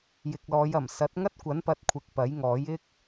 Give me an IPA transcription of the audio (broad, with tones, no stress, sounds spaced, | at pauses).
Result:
j ɪ˨ k̚ l ɔː˨˧ j ɐ˨˩ m s ɐ˨˥ t̚ ŋ ɐ˥ t̚ kʷ ɐ˨˥ n p ɐ˨˥ t̚ kʷʰ ɪ˨ k̚ p ɐ˨˥ j ŋ ɔː˨˥ j ɪ˥ k̚